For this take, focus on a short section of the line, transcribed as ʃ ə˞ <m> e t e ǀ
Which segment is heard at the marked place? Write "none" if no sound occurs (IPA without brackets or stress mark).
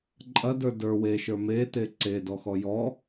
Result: m